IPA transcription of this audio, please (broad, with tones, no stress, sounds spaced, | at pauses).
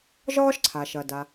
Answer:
ʒ ɒː˥ ʃ ǀʰ a˩ ʃ ɐ˩ d a˩